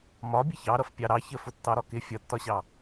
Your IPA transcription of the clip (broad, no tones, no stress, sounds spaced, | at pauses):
m ɒ bʲ ə ç ɑ ɾ ʌ f pʲ ɑ ɾ ɑ ç ə f ʊ tː ɑ ɾ ɒ k ɪ fʲ ʌ tː ɒ ɕ ɑ